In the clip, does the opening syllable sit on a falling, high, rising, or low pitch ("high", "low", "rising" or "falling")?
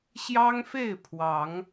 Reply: high